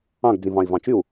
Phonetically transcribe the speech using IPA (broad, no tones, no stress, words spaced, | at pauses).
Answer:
ɑ̃ɡ d͡zĩvɑ̃i̯vɑ̃t͡ʃyu̯